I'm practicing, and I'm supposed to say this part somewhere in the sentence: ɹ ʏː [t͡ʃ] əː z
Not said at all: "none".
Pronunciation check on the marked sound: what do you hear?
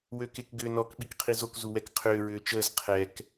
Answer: t͡ʃ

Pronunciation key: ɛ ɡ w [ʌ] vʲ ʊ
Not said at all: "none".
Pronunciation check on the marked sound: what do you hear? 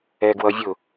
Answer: ʌ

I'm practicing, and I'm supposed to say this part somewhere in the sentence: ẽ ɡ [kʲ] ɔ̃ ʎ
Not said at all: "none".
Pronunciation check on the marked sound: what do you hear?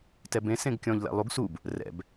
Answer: kʲ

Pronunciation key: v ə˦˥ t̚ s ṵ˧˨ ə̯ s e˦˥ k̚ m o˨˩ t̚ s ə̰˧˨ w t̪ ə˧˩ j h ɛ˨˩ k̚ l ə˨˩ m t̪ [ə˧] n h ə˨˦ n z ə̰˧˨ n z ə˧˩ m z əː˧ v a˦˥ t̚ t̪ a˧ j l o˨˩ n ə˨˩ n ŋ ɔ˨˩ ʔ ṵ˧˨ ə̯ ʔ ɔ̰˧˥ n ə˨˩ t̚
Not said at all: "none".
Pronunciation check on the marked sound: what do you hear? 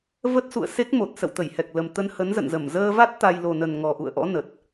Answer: ə˧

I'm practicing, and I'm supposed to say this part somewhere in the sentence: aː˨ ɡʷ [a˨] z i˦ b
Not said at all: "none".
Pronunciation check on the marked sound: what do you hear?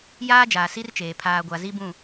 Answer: a˨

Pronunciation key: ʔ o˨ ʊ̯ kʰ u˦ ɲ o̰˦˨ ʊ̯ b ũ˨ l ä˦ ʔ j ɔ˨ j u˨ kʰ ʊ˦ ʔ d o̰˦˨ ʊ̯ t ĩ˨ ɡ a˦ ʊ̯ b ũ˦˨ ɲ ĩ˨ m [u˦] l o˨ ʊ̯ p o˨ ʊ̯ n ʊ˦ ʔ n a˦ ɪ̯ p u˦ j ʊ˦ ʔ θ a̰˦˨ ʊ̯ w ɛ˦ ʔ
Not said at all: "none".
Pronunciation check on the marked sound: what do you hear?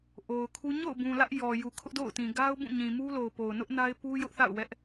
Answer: u˦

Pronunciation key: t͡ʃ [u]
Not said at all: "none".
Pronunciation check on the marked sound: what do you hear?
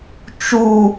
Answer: u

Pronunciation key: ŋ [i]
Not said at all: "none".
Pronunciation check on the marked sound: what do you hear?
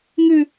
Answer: ɨ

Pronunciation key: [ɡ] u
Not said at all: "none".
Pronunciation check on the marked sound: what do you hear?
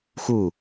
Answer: x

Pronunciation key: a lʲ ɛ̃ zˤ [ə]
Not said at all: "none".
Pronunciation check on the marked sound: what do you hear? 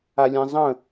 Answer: ə̃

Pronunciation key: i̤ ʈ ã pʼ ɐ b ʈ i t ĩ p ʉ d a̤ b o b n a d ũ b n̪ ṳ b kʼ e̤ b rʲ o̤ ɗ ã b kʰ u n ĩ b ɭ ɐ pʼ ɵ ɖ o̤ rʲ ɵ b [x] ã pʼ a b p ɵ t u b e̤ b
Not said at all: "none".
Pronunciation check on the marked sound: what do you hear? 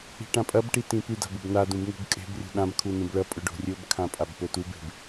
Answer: kʰ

